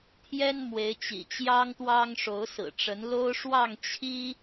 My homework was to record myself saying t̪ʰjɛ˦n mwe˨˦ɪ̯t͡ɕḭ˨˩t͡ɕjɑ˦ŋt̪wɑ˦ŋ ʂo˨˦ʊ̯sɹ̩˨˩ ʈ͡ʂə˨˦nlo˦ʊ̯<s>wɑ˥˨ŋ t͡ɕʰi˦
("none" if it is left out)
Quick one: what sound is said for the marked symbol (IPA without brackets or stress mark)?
ʂ